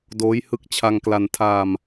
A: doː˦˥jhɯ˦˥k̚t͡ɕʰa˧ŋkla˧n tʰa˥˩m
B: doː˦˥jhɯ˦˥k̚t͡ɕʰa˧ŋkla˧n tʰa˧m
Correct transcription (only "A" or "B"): B